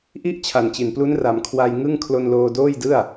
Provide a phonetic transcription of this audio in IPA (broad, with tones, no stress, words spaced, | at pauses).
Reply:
ʔi˦˥ʔ t͡ɕʰa˨˩nt͡ɕi˨˩nplu˦˥n ra˨˩mkʰwa˧jŋɯ˥˩ŋ kʰlo˧nloː˧ doː˥˩jdɯ˥˩a̯